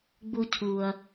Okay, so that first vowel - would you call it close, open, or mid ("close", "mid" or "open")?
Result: close